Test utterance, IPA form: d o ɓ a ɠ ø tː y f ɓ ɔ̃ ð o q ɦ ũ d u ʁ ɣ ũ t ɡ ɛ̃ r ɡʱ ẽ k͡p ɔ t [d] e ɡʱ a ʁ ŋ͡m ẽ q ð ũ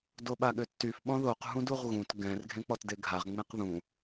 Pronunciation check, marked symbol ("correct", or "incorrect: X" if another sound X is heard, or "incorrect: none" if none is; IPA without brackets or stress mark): correct